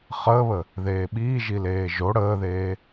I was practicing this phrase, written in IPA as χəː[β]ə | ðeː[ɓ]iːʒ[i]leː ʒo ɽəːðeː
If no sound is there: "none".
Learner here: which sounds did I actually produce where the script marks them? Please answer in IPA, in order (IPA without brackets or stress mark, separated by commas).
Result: β, ɓ, i